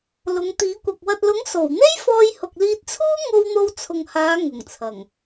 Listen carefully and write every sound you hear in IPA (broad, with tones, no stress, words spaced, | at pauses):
lʊ˨˧ŋt̪iː˨˥kʷɐ˨k̚ wɐ˨t̚lʊ˨˥ŋ so˨˩wn̪e˥j fɔː˧jhʊ˨k̚liː˧t̚t͡sʰuː˥ ŋo˧wn̪o˧wt͡sʰʊ˨ŋhaː˨˧ ŋʊ˨˩ŋt͡sʰɐ˨˩ŋ